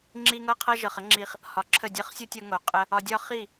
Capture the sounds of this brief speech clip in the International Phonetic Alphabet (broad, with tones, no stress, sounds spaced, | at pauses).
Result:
ŋ͡ǁ i˦ ŋ ɤ˦ qʰ ɤ˦ ʒ ɤ˨ χ ə˦ ŋ͡ǁ i˧ χ | h ɒ˨ ǁʰ ə˦˨ dʲ ɤ˦ χ sʲ o˦ tʲ ɤ˧ ŋ o˨ qʼ ə˦ | ɒ˧ dʲ ɒ˦ χ i˦˨